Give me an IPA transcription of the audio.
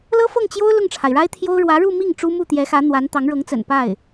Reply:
l ɤ˥ f ɤ˥˩ ŋ t͡ɕ j o˥ ʊ̯ l ʊ˥˩ ŋ ʈ͡ʂʰ a˩ ɪ̯ ɻ a˥ ɪ̯ t̪ʰ j o˥ ʊ̯ ɻ w ä˧˥ ɻ u˥˧ m i˥˩ ŋ ʈ͡ʂ u˥ m u˥˩ t̪ j ɛ˧˥ x ä˧˥ n̪ w a˧˥ n t̪ ɑ˧˥ ŋ ɻ ɤ˧˥ ŋ t͡s ə̰˨˩ n p a˥˩ ɪ̯

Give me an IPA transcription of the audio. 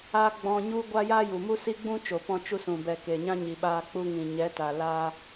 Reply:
a˧ ɡ͡b ɔ̃˧ ɲ u˦ ɡʷ a˦ j a˦ j u˨ m u˦ s i˦ ɡ͡b ũ˦ t͡ʃ o˨ p ɔ̃˧ t͡ʃ u˧ s ũ˨ b ɛ˨ k e˨ ɲ ã˦ ɲ i˨ ɓ aː˧ k͡p u˧ ŋ ĩ˨ ɲ ɛ˨˦ t a˨ l a˧

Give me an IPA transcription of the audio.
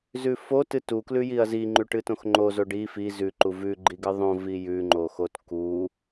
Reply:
z ʉ f o t ɨ t u k l ʉ j i ɐ̯ z i ŋ͡ǃ ʉ ʈ ɨ t õ x ŋ͡ǃ o z o ɖ i f i z ʉ ǃ u v ʉ ɡ͡ǃ i ɡ ɨ ðˤ õ v i j ʉ ŋ͡ǃ o x o t k u

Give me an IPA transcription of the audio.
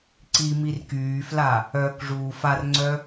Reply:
ǀ i m i r k yː f l a | œ k ʐ uː f a r ŋ͡ǀ œ

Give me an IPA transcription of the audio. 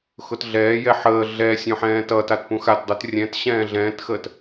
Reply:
x ʊ t ɮ ɛː j ɛ ħ əː ɮ ɛ sʲ õ ħ ɛ̃ː t ʌ t a t p ũ x a t dˤ u t rʲ ɛ̃ t ɕ ɛ̃ː ɮ ɛ̃ː t x əː t

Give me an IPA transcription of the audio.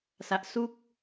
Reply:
s a˨˩ ʔ s u˥˩ k̚

